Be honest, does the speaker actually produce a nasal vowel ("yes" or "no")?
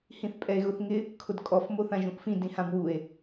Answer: yes